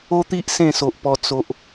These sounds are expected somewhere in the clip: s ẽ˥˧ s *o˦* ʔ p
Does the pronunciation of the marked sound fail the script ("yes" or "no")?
yes